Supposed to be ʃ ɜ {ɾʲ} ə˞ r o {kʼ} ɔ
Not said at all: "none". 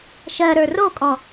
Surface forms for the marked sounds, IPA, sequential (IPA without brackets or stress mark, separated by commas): ɾ, kʼ